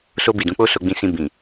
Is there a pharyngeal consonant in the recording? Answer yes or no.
no